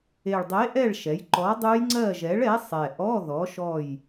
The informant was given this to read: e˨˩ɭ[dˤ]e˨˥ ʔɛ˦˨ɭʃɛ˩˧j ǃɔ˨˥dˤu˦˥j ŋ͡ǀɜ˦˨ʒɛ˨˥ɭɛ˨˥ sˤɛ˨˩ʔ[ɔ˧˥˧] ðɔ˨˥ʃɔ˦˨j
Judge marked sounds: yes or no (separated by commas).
yes, yes